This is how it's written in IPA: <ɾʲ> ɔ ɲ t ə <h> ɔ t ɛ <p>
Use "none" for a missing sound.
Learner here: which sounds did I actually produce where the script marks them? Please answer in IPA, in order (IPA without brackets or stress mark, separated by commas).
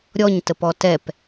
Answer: ɾʲ, p, p